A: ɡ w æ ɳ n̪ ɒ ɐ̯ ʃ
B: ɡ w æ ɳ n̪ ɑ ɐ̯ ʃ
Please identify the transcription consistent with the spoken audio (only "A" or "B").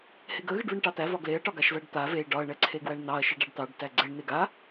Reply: B